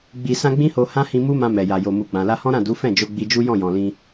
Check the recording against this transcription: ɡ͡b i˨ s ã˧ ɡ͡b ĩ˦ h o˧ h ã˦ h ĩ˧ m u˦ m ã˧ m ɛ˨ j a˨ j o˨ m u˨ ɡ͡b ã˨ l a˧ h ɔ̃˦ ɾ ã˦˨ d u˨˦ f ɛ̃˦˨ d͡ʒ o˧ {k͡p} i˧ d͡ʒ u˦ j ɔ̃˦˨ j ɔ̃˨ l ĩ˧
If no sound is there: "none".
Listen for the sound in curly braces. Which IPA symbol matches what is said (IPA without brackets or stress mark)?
ɡ͡b